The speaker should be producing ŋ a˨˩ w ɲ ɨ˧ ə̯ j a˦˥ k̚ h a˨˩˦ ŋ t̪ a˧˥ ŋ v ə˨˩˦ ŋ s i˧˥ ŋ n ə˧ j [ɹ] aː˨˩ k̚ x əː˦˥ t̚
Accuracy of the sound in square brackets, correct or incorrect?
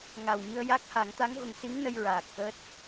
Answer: correct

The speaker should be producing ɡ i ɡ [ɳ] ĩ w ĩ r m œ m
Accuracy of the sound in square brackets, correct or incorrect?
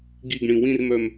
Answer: correct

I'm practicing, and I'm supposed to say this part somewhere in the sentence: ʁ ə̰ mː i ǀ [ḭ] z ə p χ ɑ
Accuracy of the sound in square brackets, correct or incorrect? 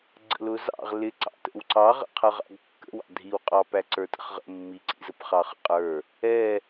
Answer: correct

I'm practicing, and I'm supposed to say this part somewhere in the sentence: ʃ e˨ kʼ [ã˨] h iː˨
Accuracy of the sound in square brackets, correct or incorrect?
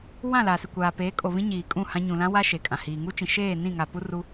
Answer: correct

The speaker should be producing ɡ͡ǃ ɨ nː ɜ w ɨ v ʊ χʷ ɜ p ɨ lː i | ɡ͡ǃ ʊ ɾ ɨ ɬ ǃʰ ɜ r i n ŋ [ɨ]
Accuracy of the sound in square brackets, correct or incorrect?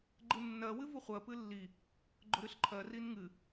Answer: correct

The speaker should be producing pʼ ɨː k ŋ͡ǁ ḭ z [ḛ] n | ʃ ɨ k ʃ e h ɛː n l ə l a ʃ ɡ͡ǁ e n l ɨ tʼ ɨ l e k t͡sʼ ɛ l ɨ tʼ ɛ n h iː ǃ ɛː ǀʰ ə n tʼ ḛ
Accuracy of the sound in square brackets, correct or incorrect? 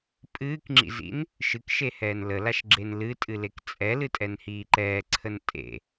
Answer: incorrect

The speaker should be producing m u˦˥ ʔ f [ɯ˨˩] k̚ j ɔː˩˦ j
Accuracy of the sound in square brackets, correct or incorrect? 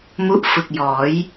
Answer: correct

